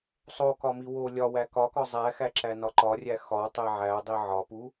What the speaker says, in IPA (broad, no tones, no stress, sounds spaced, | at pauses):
sˤ o k ɒ m i w o lʲ ɒ w æ k ɒ k ɒ zˤ æ x æ ǁ æ n ɒ ǃ ɒ rʲ æ x ɒ tˤ e ʕ æ dˤ i ʕ ɒ p u